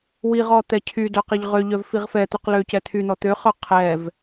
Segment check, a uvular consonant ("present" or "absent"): present